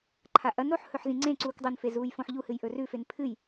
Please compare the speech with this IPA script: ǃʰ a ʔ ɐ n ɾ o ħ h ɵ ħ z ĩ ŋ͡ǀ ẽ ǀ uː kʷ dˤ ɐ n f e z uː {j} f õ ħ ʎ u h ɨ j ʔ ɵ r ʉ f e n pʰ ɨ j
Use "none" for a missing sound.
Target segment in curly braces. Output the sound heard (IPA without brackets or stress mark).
j